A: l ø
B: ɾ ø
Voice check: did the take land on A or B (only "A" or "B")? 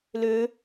A